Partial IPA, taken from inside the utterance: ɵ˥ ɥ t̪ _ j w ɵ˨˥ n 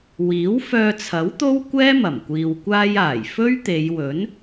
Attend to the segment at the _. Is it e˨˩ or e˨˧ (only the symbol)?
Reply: e˨˧